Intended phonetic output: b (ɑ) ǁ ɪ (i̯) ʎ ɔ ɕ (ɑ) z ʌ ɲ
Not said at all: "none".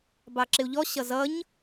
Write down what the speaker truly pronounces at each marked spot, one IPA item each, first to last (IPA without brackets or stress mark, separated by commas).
ɑ, u̯, ʌ